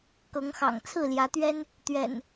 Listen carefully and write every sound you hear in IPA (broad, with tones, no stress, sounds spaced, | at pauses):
k ɤ˨˦ ŋ x ɑ̰˨˩ ŋ t͡sʰ ɹ̩˥˨ l j ä˨˦ t̪ ɥ ɛ˦ n | t̪ ɥ ɛ̰˨˩ n